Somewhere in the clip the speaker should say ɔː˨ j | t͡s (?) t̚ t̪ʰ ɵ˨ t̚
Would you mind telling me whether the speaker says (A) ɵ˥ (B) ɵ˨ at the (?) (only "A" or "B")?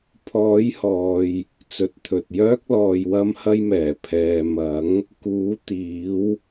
B